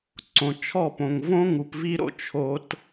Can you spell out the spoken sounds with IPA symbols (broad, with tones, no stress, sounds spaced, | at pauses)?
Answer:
ǀ õ˨ t͡ʃʰ ɔ˦˨ p õ˨ ŋ v õ˦ ŋ u˨ p v i˦ ɾ o̰˧ t͡ʃʰ o˦ t